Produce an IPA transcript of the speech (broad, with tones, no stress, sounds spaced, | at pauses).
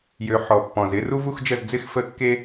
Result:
j ø˨˦ ħ ɔ˨˩ pː ɔ̃˨˩ z ɪ˥˧ r u˥ v u˥˧ x d͡ʒ ə˥˩ z d͡z ɪ˥˧ x f ə˥˩ kː e˥